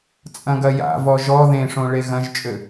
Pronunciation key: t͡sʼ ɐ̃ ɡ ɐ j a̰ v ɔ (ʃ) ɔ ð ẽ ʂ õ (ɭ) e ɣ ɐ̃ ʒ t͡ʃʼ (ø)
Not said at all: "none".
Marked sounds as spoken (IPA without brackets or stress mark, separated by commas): ʒ, ɭ, ø